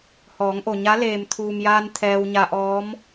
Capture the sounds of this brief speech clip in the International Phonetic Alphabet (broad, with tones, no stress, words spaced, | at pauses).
hɔː˩˧ŋʔo˩ɲa˧˥ leː˩mt̪ʰuː˩mjaː˧n t̪ʰɛː˧wɲa˧ʔɔː˧˥m